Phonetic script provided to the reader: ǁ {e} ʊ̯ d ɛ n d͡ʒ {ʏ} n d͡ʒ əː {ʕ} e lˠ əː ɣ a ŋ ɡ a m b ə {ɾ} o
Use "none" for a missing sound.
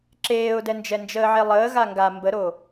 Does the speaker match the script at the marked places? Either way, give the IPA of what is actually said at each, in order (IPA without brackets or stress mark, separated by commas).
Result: eː, ɛ, ʕ, ɾ